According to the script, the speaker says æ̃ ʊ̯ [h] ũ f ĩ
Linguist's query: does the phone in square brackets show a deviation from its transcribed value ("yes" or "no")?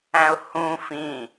no